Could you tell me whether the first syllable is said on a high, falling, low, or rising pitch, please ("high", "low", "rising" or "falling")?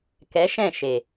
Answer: rising